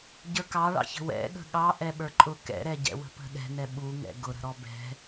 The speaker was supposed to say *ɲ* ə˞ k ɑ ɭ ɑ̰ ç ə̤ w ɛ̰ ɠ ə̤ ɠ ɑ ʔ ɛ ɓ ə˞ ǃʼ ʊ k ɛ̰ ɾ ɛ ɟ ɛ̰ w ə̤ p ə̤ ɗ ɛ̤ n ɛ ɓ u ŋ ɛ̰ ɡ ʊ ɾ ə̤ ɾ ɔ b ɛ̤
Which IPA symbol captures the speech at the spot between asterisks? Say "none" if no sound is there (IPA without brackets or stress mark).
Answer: ɟ